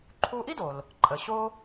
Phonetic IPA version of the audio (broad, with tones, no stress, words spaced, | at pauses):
ǃʰu˧ʔi˥do˩l | ǃʼə˩ɕo˥